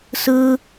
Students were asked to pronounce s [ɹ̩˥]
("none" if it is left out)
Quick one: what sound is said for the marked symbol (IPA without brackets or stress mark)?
ɹ̩˥